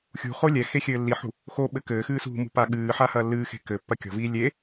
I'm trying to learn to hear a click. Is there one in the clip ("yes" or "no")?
no